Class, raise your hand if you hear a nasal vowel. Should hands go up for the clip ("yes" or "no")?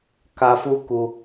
no